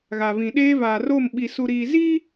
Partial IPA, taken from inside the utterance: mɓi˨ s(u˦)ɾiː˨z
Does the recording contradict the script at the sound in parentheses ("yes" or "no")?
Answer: yes